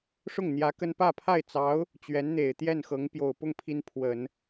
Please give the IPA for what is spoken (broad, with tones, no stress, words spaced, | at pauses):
ʂʊ˥˩ŋn̪jä˧˥ kə˥n pä˥˧pʰa˥˩ɪ̯t͡sɑ˧˥ʊ̯ | t͡ɕɥɛ˧˥nn̪e˨˩ɪ̯ t̪jɛ˥˩nxɤ˧˥ŋ pjo˨˩ʊ̯pʊ˥˩ŋ pʰi˥npʰwə˨˩˦n